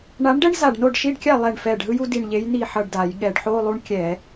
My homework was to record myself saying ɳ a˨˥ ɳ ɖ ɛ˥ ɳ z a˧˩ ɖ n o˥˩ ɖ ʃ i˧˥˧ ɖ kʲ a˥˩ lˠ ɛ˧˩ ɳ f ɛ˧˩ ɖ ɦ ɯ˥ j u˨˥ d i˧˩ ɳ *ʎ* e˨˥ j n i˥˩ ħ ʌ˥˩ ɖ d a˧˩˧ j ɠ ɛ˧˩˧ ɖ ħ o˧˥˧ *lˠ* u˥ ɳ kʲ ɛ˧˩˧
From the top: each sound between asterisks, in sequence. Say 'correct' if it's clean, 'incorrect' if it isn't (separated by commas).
correct, correct